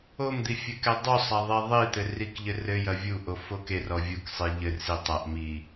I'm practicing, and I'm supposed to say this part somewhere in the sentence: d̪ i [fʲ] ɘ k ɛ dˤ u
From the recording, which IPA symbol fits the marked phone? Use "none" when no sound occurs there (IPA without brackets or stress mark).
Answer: fʲ